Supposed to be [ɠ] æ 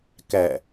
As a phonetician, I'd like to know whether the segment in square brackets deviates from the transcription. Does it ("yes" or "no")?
yes